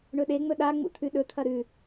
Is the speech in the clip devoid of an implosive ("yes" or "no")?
no